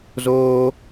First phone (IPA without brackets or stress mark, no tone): z